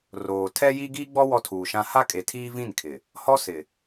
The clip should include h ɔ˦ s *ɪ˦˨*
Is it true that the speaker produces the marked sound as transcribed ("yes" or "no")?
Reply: no